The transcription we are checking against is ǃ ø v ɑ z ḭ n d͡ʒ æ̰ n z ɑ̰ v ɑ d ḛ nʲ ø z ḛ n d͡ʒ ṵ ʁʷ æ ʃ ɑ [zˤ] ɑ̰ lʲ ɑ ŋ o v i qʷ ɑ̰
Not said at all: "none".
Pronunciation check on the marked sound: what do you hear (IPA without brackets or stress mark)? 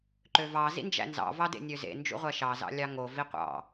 z